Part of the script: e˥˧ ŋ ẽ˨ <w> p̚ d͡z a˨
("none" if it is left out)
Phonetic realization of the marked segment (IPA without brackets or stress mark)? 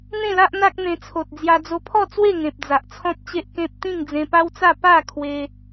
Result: none